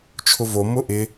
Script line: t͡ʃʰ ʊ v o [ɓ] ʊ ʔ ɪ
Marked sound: incorrect: m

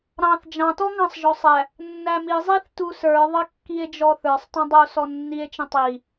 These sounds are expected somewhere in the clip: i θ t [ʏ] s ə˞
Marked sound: incorrect: u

